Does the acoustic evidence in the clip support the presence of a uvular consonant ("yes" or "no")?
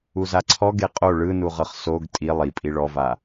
yes